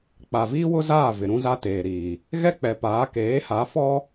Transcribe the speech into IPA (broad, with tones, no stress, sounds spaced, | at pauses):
k͡p a˨ v iː˦ w ʊ˦ z aː˦˨ v ɪ˨ ɾ ũ˦ z a˦ t eː˨ ɾ iː˨ | ɣ ɛ˦ k͡p ɛ˨ p aː˨˦ k eː˨˦ h a˨˦ f ɔ˦